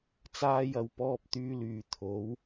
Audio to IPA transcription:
t͡s aː˧ j ɐ˨ w p ɔː˧ p̚ t̪ yː˧ l yː˨ t̪ʰ o˨˥ w

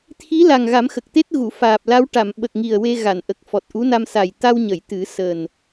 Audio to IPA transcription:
t̪ʰ i˧˥ l a˨˩ ŋ ɣ a˨˩˦ m x ə˨˩ k̚ t̪ e˦˥ t̚ ɣ u˨˩˨ f aː˨˩ p̚ l a˧˥ w ʈ a˨˩˨ m ɓ ə˨˩ k̚ ŋ i˨˩ ə̯ w e˧ ɣ a˨˩˨ n ʔ ə˨˩ k̚ f ɔ˨˩ t̚ ʔ u˧˥ n a˧ m s a˨˩ j t̪ a˧ w ɲ ə˨˩˨ j t̪ ɨ˨˩˦ s əː˨˩ n

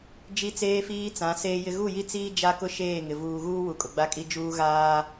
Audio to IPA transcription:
d͡ʒ i˦ t͡s eː˦ f iː˦ t͡s ã˨˦ s eː˦ j ɪ˦ ɣ u˦˨ j i˦ t͡s iː˦ d͡ʒ a˦ k ʊ˦ ʃ eː˦˨ ŋ ɪ˨ v uː˨ ɣ uː˦ w u˨ kʼ ʊ˨ ɡ͡b a˦ kʼ i˦ d͡ʒ uː˦ ɣ aː˦

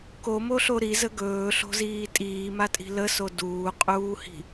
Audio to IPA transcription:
k o m o ɬ o ɾ i z ə ɡ ɵː ɬ o̤ z iː tʼ iː m a tʼ i̤ l ə s o d uː qʼ uː h i̤

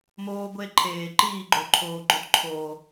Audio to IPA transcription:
m oː˦ ɡʷ e˦ ǃʰ eː˨ ǃ iː˦˨ ɡ͡ǃ o˨ ǃʰ oː˨ ɡ͡ǃ o˧ t ǃʰ oː˨

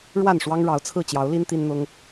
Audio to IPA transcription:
ɻ w a˥˨ n ʂ w ɑ˦ ŋ ɻ ɑ˨˦ ʊ̯ t͡sʰ ɹ̩˥˨ t͡ɕ j ɑ˨˦ ʊ̯ l i˦ n t̪ i˦ n n̪ ʊ˦ ŋ

